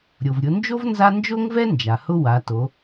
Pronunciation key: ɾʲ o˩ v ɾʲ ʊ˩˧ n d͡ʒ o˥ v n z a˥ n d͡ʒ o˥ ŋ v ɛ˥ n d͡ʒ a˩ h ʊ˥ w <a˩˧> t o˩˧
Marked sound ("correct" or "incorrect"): correct